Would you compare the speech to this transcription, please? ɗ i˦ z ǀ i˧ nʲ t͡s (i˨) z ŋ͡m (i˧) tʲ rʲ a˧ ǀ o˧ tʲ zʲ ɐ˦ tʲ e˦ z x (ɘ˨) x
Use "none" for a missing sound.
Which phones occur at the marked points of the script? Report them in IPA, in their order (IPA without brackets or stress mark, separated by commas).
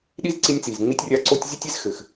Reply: i˨, i˧, ɘ˨